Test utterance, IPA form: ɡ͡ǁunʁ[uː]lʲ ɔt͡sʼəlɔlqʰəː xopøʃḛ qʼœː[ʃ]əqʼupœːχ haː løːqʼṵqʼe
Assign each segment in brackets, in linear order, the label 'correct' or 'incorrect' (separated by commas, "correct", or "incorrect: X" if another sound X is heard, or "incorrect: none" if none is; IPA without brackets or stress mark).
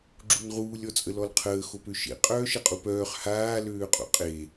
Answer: correct, correct